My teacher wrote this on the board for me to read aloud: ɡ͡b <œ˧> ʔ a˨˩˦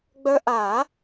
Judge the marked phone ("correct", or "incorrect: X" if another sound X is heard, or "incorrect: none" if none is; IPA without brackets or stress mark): correct